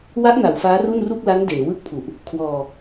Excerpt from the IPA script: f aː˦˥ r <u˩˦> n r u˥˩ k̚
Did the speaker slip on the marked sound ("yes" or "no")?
yes